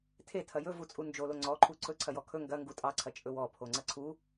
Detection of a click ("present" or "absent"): present